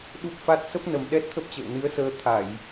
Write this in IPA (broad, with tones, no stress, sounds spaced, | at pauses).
ɗ u˦˥ p̚ f a˦˥ t̚ s ə˦˥ p̚ n ə˨˩ m ɗ ɛ˦˥ t̚ t̪ʰ ə˦˥ p̚ t͡ɕ ə̰ː˧˨ w n ɨ˨˦ ə̯ s əː˧ t̪ʰ a˧˩˨ j